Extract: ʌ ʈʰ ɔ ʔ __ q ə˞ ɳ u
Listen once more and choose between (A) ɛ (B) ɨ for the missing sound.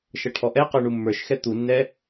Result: A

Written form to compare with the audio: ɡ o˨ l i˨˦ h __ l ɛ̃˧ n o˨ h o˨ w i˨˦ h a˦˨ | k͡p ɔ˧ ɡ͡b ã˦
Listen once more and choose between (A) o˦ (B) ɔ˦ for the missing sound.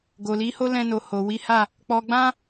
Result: A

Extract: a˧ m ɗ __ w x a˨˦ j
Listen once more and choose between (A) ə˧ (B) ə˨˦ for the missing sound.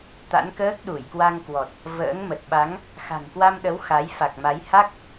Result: B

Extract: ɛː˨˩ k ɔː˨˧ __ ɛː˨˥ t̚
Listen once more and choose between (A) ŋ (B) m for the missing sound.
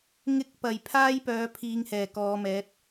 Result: B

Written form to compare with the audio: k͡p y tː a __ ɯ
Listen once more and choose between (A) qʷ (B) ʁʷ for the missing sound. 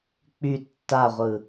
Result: B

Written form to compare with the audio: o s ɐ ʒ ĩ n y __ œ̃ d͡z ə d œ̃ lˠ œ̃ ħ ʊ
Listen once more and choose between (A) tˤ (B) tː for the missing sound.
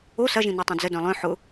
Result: A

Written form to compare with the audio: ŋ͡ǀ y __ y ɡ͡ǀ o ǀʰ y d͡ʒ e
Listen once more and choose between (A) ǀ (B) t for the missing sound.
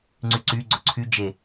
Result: A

